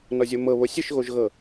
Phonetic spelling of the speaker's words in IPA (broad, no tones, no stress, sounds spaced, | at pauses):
n ɔ zʲ o m ɤ β o sʲ ɯ ʃ ɣ o ʒ ɣ ɤ